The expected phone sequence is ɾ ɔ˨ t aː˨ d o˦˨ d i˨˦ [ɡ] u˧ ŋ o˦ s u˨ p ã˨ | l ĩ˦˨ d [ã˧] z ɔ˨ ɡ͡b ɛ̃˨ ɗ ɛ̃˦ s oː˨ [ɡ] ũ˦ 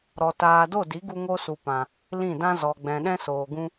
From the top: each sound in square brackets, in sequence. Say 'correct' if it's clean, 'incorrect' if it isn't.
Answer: correct, incorrect, correct

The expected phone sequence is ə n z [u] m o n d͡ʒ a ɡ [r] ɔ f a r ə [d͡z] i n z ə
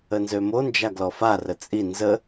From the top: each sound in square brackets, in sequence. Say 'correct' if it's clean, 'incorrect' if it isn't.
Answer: incorrect, incorrect, incorrect

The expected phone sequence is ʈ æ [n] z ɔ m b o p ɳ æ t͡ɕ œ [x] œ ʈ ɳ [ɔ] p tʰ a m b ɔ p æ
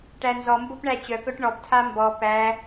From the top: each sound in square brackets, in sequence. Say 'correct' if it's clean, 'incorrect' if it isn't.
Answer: correct, incorrect, correct

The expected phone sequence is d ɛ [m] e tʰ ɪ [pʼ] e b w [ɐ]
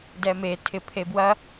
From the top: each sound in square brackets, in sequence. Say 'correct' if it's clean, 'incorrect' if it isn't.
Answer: correct, incorrect, correct

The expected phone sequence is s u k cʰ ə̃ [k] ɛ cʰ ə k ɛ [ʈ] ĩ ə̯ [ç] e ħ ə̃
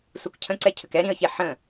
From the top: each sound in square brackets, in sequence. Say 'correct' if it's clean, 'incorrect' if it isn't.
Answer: incorrect, incorrect, correct

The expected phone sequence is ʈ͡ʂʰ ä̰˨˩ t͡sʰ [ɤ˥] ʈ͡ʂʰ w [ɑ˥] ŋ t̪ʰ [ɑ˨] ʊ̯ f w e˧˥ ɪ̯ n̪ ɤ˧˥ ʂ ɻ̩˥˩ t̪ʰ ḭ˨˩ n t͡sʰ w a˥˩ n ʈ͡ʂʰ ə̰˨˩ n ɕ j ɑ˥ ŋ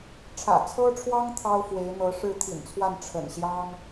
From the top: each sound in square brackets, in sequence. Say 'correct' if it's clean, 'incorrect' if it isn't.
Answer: correct, correct, incorrect

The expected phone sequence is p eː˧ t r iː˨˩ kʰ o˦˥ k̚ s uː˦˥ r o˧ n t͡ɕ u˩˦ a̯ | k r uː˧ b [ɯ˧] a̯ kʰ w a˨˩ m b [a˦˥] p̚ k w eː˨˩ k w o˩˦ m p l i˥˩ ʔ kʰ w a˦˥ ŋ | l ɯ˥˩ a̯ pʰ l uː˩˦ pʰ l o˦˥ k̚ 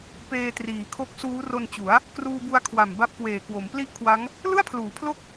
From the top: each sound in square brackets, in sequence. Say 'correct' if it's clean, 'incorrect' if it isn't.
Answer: incorrect, correct

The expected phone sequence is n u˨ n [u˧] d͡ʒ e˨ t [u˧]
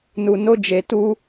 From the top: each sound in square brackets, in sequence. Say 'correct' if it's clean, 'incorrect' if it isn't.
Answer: incorrect, correct

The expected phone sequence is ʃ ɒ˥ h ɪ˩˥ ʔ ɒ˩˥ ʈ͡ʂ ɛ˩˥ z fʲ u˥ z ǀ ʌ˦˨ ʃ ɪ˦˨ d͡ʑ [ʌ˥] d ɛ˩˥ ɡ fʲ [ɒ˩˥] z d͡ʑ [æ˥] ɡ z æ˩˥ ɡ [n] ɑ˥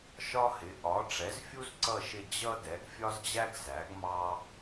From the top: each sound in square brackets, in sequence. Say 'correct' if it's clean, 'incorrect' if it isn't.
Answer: correct, incorrect, correct, incorrect

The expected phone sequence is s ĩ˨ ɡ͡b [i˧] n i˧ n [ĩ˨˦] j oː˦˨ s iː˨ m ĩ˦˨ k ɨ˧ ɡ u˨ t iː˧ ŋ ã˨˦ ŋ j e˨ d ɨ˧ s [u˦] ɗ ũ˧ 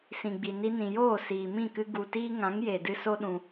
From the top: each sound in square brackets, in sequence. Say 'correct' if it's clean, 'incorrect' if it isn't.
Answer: incorrect, incorrect, incorrect

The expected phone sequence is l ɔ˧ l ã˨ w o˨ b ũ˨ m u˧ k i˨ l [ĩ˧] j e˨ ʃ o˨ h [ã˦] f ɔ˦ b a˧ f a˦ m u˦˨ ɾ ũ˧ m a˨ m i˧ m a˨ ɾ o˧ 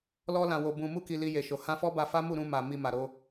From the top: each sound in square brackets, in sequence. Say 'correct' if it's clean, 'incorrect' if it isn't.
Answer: incorrect, incorrect

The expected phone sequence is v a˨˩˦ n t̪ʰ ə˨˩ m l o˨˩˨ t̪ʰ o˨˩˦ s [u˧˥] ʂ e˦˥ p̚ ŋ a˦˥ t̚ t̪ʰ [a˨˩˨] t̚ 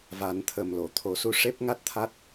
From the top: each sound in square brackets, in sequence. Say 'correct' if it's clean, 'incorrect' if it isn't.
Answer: incorrect, incorrect

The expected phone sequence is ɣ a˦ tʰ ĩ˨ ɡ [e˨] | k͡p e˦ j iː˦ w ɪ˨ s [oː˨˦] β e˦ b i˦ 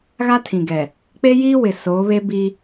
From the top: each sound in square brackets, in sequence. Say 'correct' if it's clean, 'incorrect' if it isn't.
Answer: incorrect, correct

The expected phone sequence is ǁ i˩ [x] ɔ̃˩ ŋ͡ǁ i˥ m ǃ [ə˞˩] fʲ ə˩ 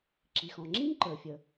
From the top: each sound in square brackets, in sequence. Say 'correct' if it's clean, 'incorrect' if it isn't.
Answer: correct, correct

